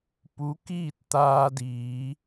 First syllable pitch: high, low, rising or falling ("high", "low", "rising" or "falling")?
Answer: rising